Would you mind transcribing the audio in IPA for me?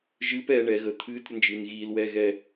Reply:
ʒ ɨː p ɛː ɳ ɛː ɣ əː t̪ʰ ɨː t ɾʲ ə n d͡ʒ ɨː n ɣ iː l w ɛː ɣ ɛː

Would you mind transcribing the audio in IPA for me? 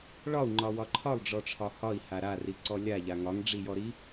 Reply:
ɭ ɒ u̯ ŋ͡ǃ ɒ w ɒ ǃʰ ɒ lˠ ɖ͡ʐ ɔ ʈ͡ʂʰ ɒ h ɒ i̯ h a ɾ a r i ǀ ɔ lʲ a ʎ a ŋ ɒ ŋ ɖ͡ʐ i j ɔ ɾ i

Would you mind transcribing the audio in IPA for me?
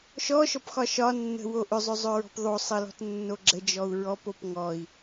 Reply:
ʃ ɔ ʃ ɔ p x ɒ ʃ ɒ nː ə̤ w o ʔ ʏ zˤ ʏ zˤ ʏ ɹ ɔ̤ p ðˤ o sˤ ɘ l ɔ̤ t nː o ɡ͡ǁ ə d͡ʒ ɔ u̯ ɹ ɔ p o p ŋ ɔ i̯

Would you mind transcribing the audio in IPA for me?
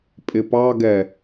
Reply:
pʼ ɪ p ɑ ɡ ɛ

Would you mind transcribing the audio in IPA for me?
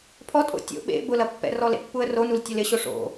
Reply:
pʰ ɔ tʼ o̰ tʲ o̰ ɓ ḛ b ʊ l ɐ pː ɛ̰ r ɔ l ḛ pː u ə̯ r o n u l tʲ ɐ l ɪ ɕ o ʂ o̰

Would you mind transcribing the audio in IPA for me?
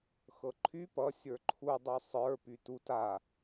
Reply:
x ɤ ǃʰ y p ʌ sʲ ə˞ ǃʰ u dˤ y sˤ ə˞ p y t u t a

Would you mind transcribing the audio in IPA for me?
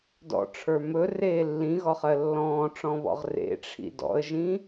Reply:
d ɔ̰ ʈ͡ʂʰ ə˞ m ɵ r eː lː ĩ ɣ ɔ χ ɜ lː ɔ̃ː ʈ͡ʂ ɔ̃ β ɔ̰ ʁ r ḛ ʈ͡ʂʰ ḭ d ɔ̰ ə̯ ʒ ĩ

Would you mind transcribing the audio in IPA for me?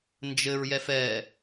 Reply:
n d͡ʒ ɘ ɹ j ɛ f ɛ

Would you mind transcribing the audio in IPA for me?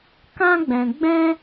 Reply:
k ã˦ ɡ͡b ɛ̃˧ ɡ͡b ɛ̃˦

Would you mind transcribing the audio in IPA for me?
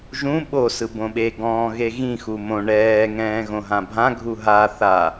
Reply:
ʒ ũ ɓ o s ɯ b õ ɓ e ɡ ɔ̃ː ɣ e ɣ ĩ x u m õ ɳ ɛː ŋ ɛ̃ː ɣ õ ɦ ã bʱ ã ɡʱ u ɦ a θ a

